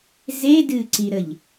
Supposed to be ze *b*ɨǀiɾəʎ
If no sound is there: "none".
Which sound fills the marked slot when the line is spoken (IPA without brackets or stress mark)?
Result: d